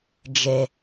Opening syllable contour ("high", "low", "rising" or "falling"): low